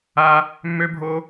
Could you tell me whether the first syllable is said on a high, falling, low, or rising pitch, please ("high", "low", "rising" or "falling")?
high